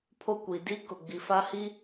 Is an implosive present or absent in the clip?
absent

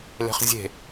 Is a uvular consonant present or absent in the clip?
present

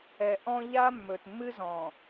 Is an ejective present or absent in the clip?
absent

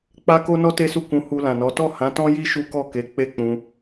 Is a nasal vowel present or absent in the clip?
present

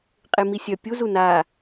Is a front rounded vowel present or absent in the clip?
present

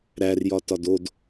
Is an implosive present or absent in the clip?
absent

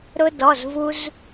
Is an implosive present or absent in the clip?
absent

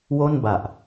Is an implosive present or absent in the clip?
absent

